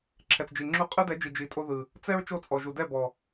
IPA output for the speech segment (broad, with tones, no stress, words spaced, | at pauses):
ǁʰɛ˨t͡sd͡ʒi˨ ŋ͡ǁu˧qʼɯ˦dɛ˨˦d͡ʒi˨ d͡ʒi˨tʼo˧ðɯ˨ | t͡sɛ˦ɹ t͡ʃo˦˨t͡sʼɔ˨ʒu˨ dɛ˦˨bɔ˨